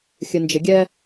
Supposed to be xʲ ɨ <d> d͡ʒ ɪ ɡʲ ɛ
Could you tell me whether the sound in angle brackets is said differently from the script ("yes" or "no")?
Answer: yes